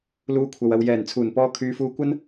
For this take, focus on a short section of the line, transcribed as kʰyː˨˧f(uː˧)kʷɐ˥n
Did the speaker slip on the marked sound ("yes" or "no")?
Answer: no